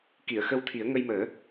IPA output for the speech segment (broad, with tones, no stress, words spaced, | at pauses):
ki˨˩˨ə̯ xə˧wt̪ʰi˨˩˦ə̯ ŋə˧jməː˨˩˦